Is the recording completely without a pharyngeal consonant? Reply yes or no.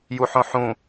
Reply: no